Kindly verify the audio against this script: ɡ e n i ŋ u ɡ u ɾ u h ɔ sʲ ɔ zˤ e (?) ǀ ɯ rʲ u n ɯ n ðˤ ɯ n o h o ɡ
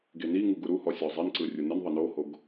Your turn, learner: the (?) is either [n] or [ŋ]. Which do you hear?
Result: n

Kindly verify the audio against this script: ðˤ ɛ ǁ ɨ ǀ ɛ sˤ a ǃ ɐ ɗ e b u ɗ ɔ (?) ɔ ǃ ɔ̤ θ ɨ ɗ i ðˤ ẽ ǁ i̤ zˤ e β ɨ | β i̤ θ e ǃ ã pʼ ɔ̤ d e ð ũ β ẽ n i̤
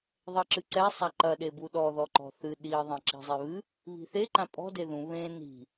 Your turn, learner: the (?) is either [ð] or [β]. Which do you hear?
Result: ð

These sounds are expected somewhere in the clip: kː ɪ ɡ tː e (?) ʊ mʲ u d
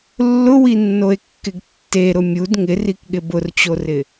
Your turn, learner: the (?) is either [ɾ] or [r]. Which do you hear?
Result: ɾ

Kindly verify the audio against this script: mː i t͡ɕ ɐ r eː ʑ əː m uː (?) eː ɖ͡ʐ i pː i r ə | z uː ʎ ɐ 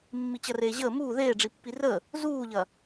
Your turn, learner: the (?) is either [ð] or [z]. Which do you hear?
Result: ð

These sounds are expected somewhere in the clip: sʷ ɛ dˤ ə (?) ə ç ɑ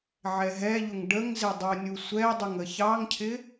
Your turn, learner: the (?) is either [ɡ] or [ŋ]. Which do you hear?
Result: ŋ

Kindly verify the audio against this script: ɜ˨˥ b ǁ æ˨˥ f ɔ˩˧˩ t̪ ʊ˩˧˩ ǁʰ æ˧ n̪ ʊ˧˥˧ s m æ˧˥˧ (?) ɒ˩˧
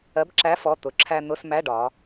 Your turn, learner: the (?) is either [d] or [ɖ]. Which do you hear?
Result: ɖ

